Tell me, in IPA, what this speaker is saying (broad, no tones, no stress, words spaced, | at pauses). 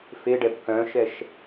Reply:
feɖɛb kœ̃ʃɛʃ